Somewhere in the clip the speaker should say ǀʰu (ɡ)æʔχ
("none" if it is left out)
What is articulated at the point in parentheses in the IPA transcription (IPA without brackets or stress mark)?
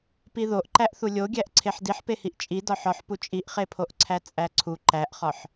ǃ